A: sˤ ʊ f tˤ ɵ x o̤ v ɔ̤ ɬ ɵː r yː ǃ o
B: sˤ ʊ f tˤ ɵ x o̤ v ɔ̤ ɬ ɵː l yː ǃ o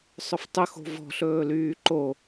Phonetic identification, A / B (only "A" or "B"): B